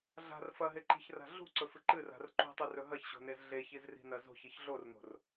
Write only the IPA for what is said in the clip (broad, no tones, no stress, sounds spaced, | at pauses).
ɮ a̤ r f ɐ ɦ e ǃ i̤ ç r a̤ ɮ ṳ ǀ ɵ f ɨ ǃ ɨ r a̤ r ǃ ṳ tˤ ɨ r ɵ ɦ ɐ ç ɕ o̤ n e z ɮ e ç i z r i̤ n ɐ z o̤ ç i ç ɮ o r n o̤ r